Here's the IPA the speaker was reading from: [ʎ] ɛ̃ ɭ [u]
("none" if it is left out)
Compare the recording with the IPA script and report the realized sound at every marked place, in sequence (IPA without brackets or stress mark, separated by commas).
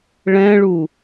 ɭ, u